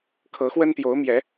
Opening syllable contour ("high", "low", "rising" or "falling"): rising